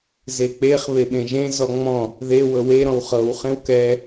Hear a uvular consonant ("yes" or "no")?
yes